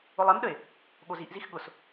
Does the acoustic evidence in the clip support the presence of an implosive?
yes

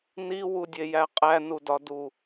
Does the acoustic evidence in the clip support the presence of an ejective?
yes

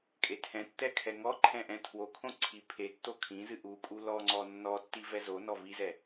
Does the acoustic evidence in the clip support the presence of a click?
yes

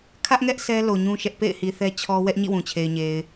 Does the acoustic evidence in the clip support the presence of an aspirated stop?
yes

